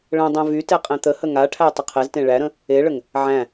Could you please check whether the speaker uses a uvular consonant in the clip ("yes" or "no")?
yes